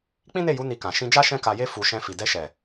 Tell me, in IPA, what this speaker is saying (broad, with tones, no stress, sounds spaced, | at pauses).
k͡p ĩ˦ n e˦˨ j u˨˦ n i˧ k ã˨ ʃ ĩ˧ d͡ʒ a˦ ʃ ɛ̃˦ k a˧ j e˦ f u˧ ʃ ɛ̃˧ f i˨ d ɛ˧ ʃ ɛ˨